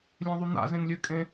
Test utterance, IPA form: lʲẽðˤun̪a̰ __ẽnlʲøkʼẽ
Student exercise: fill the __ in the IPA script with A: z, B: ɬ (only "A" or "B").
A